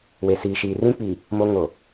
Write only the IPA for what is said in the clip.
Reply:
w e˨ s iː˨ ʃ iː˨ r ĩ˦ k͡p i˨ | m o˦ ŋ o˨

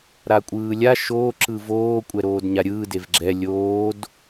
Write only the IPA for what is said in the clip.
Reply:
ɾ a kʷʼ ɯː lʲ a ʃ o ǁ ɯ v oː kʷʼ ɛ ɾ oː d ɲ a ɾʲ ɯː d e v ɡ͡ǁ ɛ lʲ oː d

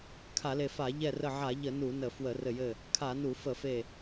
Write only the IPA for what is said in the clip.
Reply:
kʰ a˧˩˧ l e˧˩ f a˧˩˧ ʎ ɛ˧˩ r ə˧˩ ʕ a˧˩˧ ʎ ə˧˩˧ n u˧˩˧ n ə˧˩˧ f w ə˧˩˧ r ɘ˧˩ j ɘ˧˩ | kʰ a˧˩˧ n u˧˩˧ f ə˧˩˧ f e˧˩

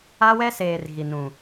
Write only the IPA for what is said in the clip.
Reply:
a˦ w ɛ˦ s eː˨ r ɣ i˨ n ũ˨

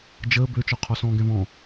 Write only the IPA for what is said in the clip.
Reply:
d͡ʒ əː b ø t͡ʃ ɔ qʰ ɔ s ɔ̃ː ɡ ɛ̃ β ɔ̃

